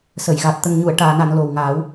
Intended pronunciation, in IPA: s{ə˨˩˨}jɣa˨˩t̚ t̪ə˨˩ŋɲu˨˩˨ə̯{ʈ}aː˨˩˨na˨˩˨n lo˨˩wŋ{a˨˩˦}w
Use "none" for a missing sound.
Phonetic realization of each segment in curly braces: ə˨˩˨, ʈ, aː˨˩˦

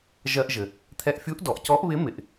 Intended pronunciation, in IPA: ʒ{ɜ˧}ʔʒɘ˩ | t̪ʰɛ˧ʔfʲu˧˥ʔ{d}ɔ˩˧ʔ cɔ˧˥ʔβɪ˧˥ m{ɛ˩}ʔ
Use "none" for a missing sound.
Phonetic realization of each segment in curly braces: ɜ˧, d, ɪ˩

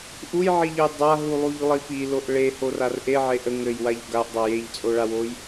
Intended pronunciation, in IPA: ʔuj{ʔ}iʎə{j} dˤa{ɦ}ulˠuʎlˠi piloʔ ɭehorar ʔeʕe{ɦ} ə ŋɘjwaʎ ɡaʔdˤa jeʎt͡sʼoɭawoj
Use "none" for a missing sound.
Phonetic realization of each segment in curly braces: ʕ, j, ɦ, ʔ

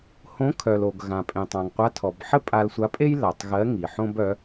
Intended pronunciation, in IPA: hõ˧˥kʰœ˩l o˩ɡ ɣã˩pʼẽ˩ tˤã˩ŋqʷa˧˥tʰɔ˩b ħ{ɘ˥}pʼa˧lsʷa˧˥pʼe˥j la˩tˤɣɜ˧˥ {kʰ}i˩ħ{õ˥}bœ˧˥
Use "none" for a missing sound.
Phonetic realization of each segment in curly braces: ɘ˥, ŋ, õ˥

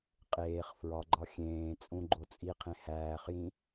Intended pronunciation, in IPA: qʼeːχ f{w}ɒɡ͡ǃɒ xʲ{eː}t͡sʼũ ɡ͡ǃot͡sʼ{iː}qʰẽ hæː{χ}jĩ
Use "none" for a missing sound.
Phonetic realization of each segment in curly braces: ɹ, ẽː, i, χ

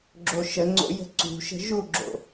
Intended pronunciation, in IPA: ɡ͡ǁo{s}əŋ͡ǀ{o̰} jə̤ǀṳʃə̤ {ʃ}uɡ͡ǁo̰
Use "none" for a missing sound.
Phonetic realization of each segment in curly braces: ʃ, o̰, ʒ

